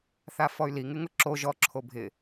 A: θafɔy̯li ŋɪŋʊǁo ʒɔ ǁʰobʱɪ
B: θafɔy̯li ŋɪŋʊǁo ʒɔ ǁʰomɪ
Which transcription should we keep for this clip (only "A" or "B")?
A